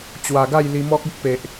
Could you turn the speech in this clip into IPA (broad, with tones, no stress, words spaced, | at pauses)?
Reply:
t͡ɕwa˨˩ɡa˥˧j li˧mɔ˦k̚ u˦k̚pe˨ʔ